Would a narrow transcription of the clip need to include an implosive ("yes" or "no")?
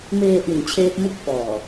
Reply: no